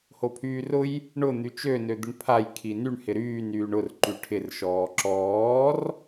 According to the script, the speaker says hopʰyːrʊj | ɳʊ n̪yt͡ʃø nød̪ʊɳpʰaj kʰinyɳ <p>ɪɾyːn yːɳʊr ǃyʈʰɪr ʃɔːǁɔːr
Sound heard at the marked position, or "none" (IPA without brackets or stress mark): h